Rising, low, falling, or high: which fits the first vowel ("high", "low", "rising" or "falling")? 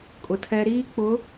low